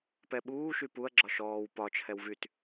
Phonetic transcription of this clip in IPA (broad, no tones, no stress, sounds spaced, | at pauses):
p ɛ ɓ uː ʃ y p u ɐ̯ ɡ͡ǁ ɒ ʃ ɔː w p ɒ t͡ʃʰ ɛ w v y t